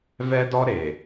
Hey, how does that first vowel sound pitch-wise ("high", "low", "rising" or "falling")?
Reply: high